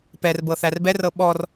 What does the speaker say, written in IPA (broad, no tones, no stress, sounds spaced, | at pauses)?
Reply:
p ɛ r b ɤ θ æ r b ɛ r ɤ ɓ ɔ r